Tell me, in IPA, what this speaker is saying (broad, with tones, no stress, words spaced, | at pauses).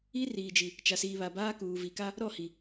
i˦riː˨d͡ʒi˨ | t͡ʃa˨siː˨βa˨baː˦ kuː˨vi˨ka˦ | ɾɔ˦˨hi˨